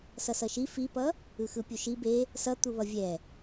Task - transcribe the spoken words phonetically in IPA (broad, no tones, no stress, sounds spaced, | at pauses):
s ʌ s ʌ ʃ i f i p ʌ | ɯ x ɯ pʲ u ʃ i b e | s ʌ t̪ u β ʌ vʲ ɛ